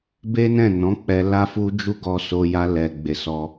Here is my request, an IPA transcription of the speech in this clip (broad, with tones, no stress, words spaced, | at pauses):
be˦nɛ̃˦˨ nɔ̃˨˦k͡pɛ˧ la˧fu˧d͡ʒu˧ ɡɔ˧so˧ja˧ lɛ˨ ɡ͡be˨sɔ˧